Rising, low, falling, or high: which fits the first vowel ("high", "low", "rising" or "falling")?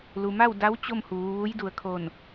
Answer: low